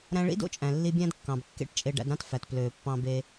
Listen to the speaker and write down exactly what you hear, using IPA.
ɾ æ̃˧ ɭ ḭ˥ d o̰˥ t͡ʃʼ æ̃˩ lː i˧ bʲ æ̃˥ d kː ɑ̃˩ b kː ḛ˥ ʈ t͡ʃʼ e˧ ɖ æ̰˧ d ɾ ɑ̃˥ t f æ˩ t p l øː˩ pː ɑ̃˧ b e˧

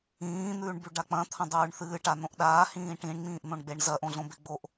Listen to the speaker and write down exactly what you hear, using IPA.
ĩː n̪ ʉː ɳ b ʉ ɖ a k͡p ɐ̃ t̪ʰ ɐ̃ dˤ ʉː ɳ θ ɨː ʈ a n õ ʔ ɗ aː h ĩː ʈ ĩ ɳ ŋ͡m ĩː ʔ n̪ õ ɳ ɡ͡b e ɳ z ɐ ʔ õ ɮ õ b e ɡ͡b o ʔ

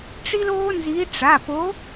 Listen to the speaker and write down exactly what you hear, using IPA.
ʈ͡ʂ i˦ l oː˦ n z i˨˦ ʈ͡ʂ a˩˧˩ p o˨˦

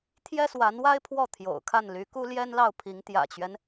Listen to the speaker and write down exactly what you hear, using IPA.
t̪ʰ j ɛ˥ s w a˧˥ n w a˥ ɪ̯ pʰ w ɔ˥˩ t̪ʰ j o̰˨˩ ʊ̯ kʰ a˥˩ n l y˧˥ k u˥ l j ɛ˥ n l ɑ˥˩ ʊ̯ pʰ i˧˥ ŋ t̪ j ä̰˨˩ t͡ɕ ɥ ɛ˦ n

